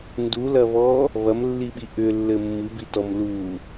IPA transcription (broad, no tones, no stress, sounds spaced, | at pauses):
n d u l ɐ β ɔ | β ɐ m lː i ɓ i ʔ ʏ lː ɘ mː ɨ b i t ɔ m l u